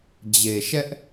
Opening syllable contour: low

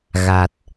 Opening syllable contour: low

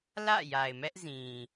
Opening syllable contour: falling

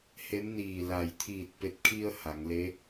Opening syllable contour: rising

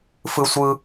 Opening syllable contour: high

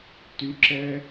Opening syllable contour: high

